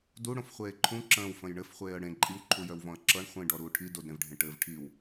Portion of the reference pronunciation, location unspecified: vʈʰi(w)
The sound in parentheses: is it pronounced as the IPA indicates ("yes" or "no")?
yes